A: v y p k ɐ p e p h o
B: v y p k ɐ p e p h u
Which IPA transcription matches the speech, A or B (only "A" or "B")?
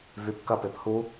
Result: B